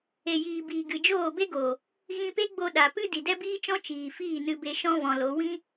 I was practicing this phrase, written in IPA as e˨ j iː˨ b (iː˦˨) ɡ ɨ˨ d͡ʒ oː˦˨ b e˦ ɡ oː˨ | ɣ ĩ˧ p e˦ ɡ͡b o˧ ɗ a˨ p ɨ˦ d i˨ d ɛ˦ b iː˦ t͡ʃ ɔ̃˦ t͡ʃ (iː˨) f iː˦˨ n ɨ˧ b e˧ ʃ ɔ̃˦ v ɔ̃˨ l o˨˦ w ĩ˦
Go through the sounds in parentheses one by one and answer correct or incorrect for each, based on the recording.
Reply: incorrect, correct

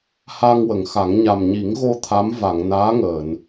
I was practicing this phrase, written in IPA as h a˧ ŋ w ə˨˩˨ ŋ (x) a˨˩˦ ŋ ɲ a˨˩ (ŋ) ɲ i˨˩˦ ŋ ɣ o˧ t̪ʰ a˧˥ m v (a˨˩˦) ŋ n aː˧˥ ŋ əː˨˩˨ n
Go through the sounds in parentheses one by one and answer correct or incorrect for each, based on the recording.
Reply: correct, incorrect, incorrect

